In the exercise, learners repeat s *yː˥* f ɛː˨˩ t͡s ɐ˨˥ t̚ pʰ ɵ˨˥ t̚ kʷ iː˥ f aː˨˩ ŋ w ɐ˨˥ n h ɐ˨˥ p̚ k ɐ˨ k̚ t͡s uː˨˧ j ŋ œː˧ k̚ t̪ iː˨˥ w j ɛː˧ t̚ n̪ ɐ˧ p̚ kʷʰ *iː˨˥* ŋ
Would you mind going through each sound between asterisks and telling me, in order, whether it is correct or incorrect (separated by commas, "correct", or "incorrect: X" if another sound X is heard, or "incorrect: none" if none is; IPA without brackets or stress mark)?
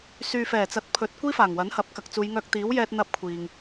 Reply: incorrect: yː˨, incorrect: iː˨